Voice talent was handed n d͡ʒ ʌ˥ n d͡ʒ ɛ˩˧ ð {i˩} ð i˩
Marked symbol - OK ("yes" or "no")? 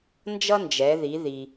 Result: no